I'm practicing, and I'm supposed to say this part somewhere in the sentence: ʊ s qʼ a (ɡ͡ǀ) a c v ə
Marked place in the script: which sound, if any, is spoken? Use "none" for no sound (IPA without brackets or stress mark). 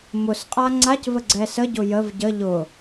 ŋ͡ǀ